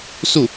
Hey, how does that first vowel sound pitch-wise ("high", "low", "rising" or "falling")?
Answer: falling